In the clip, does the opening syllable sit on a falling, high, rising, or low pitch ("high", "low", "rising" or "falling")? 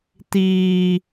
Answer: high